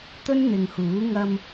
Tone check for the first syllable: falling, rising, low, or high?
high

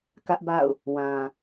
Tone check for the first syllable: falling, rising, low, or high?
high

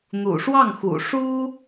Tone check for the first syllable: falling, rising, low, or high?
low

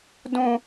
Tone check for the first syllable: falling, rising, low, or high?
low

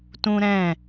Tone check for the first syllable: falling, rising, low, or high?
high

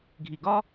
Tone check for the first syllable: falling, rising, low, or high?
low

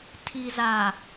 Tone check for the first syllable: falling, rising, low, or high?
low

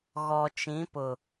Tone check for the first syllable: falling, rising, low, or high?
low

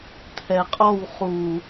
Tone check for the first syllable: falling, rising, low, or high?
low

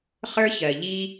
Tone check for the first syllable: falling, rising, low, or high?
high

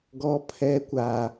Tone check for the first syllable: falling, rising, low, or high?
high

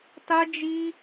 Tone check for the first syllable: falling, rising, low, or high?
high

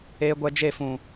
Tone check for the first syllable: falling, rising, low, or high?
high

